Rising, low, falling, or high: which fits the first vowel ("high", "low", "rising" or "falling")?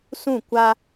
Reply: falling